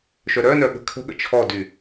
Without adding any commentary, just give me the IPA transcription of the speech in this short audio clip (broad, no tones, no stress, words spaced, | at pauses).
ʃœɾœnœ ɠə̤kʰə̤ɠə̰ t͡ʃʰɔdy